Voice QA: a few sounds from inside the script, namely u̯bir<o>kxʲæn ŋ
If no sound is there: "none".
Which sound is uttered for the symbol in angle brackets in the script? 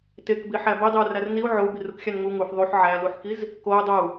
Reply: u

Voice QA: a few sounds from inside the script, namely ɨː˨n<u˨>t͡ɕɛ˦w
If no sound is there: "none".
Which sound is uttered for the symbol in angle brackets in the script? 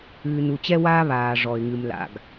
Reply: u˨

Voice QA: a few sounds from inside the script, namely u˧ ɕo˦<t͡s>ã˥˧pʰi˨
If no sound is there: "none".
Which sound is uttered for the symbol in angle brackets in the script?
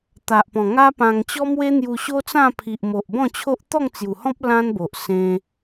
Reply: t͡s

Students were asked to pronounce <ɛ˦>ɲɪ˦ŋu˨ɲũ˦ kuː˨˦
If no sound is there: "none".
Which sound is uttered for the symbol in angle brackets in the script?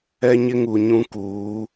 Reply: ɛ˦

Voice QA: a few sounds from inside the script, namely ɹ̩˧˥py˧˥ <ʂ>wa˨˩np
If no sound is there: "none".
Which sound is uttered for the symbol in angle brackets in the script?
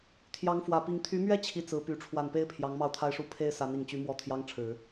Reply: ʈ͡ʂʰ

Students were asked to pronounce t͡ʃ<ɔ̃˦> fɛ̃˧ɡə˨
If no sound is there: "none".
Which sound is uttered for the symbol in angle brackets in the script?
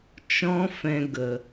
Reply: ɔ̃˦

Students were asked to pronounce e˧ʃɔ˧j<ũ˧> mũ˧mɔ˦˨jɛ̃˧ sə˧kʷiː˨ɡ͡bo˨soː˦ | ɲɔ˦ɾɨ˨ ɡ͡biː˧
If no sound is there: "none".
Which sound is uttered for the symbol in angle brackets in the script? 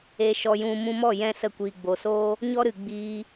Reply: ũ˧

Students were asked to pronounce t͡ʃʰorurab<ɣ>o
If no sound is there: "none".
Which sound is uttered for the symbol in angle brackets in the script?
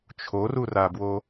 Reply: w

